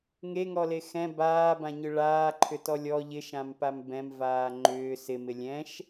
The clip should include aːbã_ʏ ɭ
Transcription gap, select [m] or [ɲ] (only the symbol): ɲ